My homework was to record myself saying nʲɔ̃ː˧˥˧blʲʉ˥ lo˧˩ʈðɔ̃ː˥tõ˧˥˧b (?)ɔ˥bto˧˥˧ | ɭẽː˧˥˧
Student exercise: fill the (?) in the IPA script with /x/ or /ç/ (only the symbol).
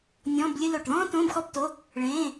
x